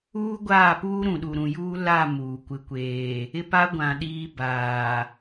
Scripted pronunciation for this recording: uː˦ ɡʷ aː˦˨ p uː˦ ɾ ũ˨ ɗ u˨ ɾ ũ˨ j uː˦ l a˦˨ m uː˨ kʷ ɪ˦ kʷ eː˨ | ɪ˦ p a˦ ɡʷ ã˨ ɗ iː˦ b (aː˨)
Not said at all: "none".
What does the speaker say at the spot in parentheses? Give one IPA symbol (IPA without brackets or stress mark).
aː˨